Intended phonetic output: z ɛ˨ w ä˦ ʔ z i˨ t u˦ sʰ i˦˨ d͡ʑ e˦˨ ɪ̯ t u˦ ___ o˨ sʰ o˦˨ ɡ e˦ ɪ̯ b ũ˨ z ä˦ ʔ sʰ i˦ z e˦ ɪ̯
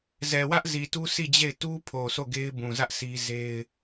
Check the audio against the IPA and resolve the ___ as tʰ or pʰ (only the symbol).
pʰ